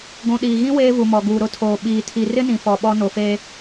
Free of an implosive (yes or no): no